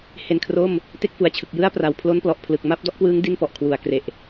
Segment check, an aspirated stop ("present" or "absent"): present